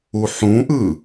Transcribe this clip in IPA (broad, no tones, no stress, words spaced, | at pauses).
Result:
uħũʔɯ